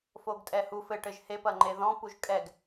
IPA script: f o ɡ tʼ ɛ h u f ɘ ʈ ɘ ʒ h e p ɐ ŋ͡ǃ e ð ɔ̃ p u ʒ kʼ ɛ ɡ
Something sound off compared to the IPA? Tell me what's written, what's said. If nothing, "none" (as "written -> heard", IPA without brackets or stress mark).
none